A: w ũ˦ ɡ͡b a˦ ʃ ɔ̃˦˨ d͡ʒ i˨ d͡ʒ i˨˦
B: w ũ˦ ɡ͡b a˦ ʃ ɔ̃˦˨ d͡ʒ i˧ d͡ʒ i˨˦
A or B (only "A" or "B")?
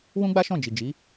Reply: A